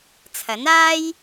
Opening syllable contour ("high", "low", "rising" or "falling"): rising